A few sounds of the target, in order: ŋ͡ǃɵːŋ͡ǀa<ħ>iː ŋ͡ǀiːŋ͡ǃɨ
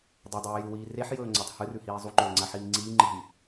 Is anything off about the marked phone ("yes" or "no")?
no